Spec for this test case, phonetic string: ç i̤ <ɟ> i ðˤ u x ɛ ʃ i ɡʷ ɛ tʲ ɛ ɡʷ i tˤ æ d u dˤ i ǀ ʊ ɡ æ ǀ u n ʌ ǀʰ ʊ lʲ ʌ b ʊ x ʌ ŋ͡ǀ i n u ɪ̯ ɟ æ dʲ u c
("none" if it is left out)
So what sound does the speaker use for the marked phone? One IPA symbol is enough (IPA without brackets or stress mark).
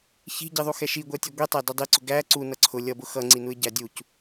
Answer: ɟ